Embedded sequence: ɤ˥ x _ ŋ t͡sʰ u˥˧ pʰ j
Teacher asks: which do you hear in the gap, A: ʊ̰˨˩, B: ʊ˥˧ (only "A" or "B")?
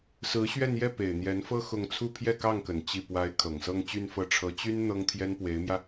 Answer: B